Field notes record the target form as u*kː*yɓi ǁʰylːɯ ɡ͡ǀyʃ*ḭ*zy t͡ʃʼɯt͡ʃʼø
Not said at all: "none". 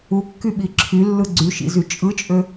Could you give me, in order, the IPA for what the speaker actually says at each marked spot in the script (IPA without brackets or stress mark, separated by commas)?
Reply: kː, ḭ